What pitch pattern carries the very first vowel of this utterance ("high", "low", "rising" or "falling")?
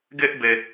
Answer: high